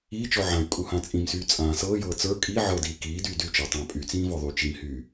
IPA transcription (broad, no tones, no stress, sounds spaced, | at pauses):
iː t͡ʃ ɔ ʕ ã y̯ kʼ u h ã t͡sʼ ĩ m s yː t͡sʼ ãː s ɤː j ɤː t͡s ə˞ kʼ i ʕ ɤ d iː k iː d yː d y t͡ʃ ə˞ tˤ ãː pʼ y t͡s ĩː v ɔ ðˤ yː t͡ʃ i m h yː